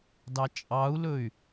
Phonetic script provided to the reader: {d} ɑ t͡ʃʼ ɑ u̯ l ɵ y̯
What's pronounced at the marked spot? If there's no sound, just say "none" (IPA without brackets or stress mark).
d